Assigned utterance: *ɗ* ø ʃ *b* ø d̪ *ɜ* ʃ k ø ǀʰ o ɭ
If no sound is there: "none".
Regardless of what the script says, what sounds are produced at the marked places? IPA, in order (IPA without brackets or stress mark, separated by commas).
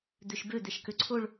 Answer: d̪, b, ɛ